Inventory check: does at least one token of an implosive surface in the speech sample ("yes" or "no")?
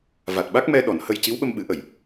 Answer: yes